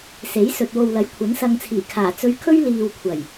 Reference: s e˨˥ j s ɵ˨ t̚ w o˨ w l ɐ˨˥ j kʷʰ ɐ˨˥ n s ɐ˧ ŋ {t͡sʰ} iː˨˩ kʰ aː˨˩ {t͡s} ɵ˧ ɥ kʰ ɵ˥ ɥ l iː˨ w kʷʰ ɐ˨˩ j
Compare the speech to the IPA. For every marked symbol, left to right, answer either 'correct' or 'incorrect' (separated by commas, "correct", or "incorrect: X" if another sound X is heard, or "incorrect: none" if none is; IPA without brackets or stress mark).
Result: correct, correct